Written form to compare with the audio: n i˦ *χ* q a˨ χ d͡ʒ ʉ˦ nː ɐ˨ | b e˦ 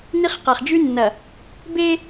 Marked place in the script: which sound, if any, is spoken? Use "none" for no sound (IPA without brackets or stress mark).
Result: χ